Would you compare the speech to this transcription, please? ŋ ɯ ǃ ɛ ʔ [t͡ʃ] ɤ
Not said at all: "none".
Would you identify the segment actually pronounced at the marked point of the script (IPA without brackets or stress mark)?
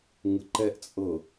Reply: t͡sʼ